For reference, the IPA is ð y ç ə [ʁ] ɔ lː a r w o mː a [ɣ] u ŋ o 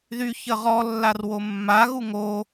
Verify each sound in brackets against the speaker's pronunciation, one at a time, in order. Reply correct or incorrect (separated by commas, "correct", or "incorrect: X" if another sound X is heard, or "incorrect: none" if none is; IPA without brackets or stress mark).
correct, correct